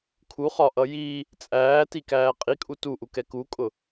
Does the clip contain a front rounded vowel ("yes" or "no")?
no